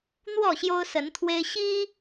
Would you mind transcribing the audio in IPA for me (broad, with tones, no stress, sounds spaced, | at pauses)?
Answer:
n̪ w ɔ˥˨ ɕ j o˦ ʊ̯ s ə˨˦ n t̪ʰ w e˦ ɪ̯ ɕ i˦